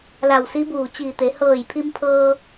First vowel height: low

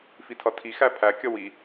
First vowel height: high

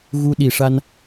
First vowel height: high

